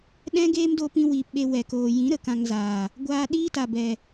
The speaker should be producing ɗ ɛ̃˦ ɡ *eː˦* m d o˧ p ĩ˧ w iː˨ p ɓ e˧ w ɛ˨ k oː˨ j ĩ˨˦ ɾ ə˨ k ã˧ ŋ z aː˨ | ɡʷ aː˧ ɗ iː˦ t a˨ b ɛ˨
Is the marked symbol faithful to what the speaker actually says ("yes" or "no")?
yes